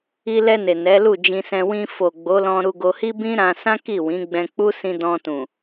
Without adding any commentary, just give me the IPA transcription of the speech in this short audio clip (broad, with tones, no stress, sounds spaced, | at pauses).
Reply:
i˧ l ɛ˧ n e˨ n ɛ˨˦ l u˦˨ d͡ʒ ĩ˧ s ɛ̃˧ w ĩ˧ f o˨ ɡ͡b o˨˦ l ɔ̃˧ ɾ u˧ ɡ o˧ h i˦ b ĩ˦ ɾ ã˧ s ã˦ k i˦˨ w ĩ˨˦ ɡ͡b ɛ̃˧ k͡p u˦ s ĩ˧ d ɔ̃˧ t ũ˨